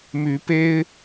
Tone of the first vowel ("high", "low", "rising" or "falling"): rising